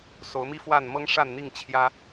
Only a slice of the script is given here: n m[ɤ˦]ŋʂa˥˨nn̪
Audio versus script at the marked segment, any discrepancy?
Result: no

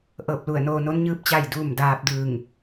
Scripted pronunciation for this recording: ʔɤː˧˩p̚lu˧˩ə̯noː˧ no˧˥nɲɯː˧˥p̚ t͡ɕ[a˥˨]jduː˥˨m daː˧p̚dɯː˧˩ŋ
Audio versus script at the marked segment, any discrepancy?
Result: no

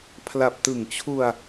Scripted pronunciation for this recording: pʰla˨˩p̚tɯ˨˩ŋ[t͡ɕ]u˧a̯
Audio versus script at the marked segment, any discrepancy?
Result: yes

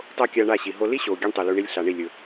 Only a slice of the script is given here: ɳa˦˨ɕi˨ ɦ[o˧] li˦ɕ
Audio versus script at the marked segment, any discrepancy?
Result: no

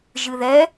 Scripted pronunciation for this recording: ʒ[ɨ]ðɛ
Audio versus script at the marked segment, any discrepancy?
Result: no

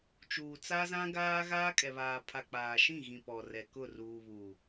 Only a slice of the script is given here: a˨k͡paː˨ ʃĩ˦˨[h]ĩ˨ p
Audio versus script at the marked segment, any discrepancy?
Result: yes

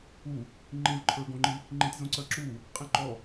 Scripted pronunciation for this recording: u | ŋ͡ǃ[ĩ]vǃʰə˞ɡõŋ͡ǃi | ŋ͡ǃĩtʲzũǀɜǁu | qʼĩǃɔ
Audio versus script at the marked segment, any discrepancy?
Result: no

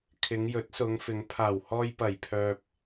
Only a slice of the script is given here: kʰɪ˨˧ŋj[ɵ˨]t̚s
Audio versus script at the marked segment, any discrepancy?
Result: yes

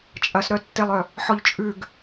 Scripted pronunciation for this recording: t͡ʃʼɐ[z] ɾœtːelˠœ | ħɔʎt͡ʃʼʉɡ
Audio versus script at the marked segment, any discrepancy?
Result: yes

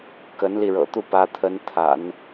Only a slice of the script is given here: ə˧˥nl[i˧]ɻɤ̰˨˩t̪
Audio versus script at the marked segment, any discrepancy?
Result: no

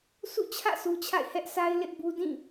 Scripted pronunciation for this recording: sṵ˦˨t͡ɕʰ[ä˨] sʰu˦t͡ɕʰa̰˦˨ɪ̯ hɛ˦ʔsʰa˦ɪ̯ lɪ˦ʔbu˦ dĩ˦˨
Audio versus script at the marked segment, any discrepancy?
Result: yes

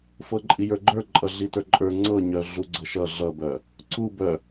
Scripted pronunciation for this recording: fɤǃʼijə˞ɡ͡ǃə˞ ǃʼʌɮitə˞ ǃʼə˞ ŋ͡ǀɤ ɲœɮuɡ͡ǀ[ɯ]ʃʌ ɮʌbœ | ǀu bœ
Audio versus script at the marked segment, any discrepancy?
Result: yes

